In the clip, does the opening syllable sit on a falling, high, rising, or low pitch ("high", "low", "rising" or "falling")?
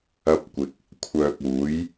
high